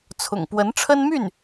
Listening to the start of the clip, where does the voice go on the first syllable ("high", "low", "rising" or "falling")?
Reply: low